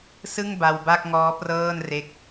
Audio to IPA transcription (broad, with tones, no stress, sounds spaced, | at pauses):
s ɯ˥˩ ŋ b a˧ w b a˥˩ k̚ ŋ ɔː˦˥ p r ɤː˥˩ n r e˦˥ k̚